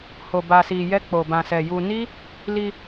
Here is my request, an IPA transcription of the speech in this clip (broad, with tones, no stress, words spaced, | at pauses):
ho˧ba˧si˧jɛ˦ k͡po˧bã˧sɛ˧ ju˧ni˦ | li˧